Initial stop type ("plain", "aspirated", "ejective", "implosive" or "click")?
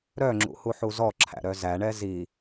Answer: click